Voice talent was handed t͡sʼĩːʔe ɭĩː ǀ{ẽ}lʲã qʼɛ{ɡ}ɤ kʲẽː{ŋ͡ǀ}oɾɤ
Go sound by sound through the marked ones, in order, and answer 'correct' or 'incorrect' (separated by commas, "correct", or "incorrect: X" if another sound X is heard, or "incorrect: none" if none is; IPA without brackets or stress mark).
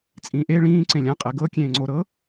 correct, correct, correct